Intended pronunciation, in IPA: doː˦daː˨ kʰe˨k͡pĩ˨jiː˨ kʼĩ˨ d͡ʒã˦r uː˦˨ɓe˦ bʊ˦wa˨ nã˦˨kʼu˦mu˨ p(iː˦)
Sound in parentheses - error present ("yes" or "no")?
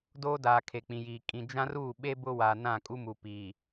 yes